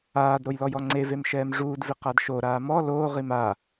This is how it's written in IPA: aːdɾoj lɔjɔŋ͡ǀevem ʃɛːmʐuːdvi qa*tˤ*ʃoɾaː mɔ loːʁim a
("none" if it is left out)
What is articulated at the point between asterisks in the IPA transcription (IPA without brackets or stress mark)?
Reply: d